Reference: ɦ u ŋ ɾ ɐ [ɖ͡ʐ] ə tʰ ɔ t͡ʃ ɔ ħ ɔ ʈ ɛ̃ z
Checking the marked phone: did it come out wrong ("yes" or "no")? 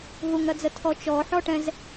yes